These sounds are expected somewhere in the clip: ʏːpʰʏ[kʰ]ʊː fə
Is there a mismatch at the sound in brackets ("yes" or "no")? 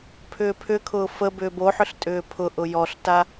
no